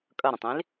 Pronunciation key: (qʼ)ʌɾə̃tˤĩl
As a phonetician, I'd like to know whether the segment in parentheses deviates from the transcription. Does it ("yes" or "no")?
yes